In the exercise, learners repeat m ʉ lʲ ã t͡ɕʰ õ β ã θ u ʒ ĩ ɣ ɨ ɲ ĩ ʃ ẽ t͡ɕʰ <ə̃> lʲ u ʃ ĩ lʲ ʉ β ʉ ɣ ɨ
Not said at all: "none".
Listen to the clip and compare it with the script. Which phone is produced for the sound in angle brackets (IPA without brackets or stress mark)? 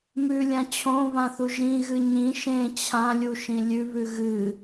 ã